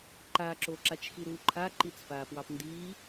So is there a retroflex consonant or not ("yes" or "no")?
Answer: no